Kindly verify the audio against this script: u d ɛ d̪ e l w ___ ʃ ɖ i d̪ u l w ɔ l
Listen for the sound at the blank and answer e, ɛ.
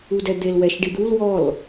ɛ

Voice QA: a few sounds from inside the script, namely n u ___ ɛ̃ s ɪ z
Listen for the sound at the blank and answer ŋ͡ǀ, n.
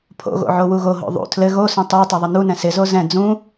n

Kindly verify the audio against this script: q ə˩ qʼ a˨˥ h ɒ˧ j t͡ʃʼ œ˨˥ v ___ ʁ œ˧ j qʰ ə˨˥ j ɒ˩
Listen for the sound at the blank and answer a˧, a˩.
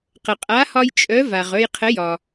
a˩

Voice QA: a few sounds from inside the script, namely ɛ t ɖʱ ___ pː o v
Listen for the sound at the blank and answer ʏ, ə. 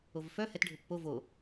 ʏ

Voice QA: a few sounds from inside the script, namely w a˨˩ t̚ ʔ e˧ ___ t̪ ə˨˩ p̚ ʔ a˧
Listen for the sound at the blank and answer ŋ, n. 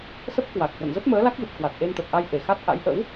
n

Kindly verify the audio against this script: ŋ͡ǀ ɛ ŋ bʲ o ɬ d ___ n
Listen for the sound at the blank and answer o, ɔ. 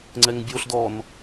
ɔ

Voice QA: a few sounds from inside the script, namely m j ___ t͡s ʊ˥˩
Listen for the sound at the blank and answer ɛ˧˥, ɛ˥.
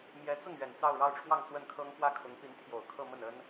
ɛ˧˥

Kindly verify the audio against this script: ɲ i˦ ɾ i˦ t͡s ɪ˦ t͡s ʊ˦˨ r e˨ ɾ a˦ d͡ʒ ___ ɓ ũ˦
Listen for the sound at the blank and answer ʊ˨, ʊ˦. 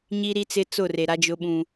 ʊ˦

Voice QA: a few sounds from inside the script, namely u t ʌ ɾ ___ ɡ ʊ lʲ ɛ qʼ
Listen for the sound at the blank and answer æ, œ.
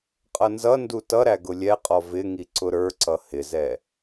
æ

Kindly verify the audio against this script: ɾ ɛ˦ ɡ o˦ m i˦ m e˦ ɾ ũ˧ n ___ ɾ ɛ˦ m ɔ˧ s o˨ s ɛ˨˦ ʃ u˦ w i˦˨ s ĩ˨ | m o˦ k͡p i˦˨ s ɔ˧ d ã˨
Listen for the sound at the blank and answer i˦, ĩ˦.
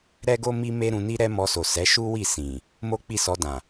i˦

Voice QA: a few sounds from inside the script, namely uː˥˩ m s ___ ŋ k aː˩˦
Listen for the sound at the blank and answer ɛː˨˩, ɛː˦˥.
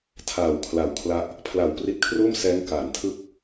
ɛː˦˥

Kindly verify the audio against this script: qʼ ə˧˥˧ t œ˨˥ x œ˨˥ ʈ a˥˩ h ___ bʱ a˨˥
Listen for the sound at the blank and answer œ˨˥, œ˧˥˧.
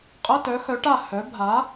œ˨˥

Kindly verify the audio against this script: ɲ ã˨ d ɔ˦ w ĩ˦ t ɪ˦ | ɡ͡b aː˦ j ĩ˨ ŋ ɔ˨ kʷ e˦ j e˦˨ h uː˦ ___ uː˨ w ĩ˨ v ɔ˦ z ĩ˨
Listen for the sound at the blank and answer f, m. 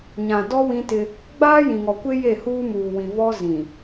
m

